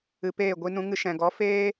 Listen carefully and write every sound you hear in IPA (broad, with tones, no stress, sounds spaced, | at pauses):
ɨ˨ p eː˦˨ ɡʷ i˧ n ũ˧ ŋ ɨ˧ ʃ ɛ̃˨ ɡ ɔ˨˦ f eː˦